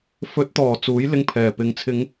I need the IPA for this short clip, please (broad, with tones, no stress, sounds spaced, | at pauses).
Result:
f ɵ˨˥ t̚ t̪ ɔː˨˩ t͡s uː˨˥ j l ɪ˧ ŋ pʰ ɛː˨˩ p ɪ˨ ŋ t͡sʰ ɪ˨˧ ŋ